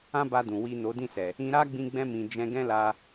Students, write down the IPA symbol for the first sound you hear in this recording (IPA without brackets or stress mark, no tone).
ã